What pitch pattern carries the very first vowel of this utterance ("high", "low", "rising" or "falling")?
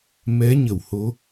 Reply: rising